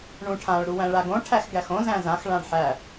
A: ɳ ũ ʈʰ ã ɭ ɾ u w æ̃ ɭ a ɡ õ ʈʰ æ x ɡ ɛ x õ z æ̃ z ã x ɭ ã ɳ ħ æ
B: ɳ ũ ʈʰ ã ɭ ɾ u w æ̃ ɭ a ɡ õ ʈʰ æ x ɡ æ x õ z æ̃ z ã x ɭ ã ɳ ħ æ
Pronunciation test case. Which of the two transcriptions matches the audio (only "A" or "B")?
B